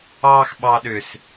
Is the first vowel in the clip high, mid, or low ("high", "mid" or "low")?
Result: low